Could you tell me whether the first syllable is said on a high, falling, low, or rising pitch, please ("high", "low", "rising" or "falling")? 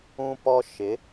high